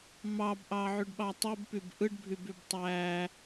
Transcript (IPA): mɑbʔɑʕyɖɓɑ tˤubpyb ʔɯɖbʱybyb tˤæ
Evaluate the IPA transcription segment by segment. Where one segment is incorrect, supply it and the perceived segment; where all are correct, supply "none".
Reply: none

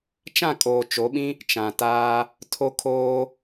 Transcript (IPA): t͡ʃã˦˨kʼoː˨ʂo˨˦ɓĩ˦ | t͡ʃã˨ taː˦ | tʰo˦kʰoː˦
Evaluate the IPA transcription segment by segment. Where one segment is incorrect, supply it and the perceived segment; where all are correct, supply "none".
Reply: ʂ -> t͡ʃ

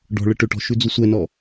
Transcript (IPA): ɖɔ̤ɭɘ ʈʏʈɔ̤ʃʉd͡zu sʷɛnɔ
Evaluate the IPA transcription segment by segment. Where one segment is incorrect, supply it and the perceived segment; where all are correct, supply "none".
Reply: none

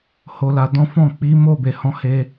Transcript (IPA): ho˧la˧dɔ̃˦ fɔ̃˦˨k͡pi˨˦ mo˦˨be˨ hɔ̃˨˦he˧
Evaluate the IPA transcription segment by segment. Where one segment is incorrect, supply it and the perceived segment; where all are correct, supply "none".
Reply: none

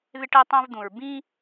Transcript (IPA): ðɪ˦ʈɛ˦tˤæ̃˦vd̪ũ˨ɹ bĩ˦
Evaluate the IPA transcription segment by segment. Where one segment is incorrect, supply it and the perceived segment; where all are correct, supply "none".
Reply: none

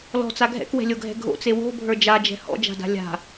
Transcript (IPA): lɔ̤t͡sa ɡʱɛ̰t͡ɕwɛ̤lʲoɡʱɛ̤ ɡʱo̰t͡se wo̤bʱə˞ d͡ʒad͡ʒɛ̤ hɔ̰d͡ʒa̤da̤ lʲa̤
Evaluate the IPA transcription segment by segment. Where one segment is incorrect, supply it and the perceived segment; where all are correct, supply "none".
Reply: t͡ɕ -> k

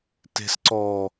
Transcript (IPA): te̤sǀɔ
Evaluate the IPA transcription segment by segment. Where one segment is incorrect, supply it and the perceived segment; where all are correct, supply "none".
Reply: none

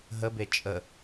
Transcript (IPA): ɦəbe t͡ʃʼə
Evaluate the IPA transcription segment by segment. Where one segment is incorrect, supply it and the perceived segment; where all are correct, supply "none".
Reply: none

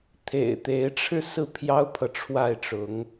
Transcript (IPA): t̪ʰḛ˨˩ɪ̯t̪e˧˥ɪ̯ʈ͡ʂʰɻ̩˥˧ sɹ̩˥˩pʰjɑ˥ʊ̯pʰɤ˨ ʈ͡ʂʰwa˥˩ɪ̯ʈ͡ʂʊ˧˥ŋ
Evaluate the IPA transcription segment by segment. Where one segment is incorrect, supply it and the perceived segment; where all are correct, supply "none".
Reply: none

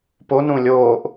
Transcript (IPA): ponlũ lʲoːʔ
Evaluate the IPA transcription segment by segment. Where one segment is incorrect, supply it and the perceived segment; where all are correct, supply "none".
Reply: l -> ɾ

